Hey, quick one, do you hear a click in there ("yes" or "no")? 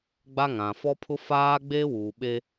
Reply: no